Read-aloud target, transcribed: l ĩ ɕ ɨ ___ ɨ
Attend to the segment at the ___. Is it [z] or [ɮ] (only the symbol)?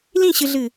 ɮ